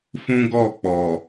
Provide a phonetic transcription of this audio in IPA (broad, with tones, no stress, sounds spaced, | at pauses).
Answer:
f ũ˦ ɡ ɔ˦˨ k͡p ɔ˨